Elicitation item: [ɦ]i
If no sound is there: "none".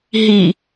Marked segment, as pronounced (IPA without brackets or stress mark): ɦ